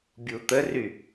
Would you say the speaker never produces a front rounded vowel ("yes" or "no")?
no